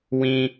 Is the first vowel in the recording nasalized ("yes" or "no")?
yes